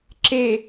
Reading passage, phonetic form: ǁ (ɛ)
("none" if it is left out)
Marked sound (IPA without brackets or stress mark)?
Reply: e